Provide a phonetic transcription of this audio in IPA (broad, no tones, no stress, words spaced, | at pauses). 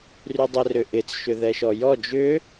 rydˤɛrʏʔɪt͡s ʃʏðɛʃɔjɔ d͡ʒʏ